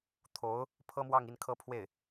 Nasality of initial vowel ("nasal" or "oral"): oral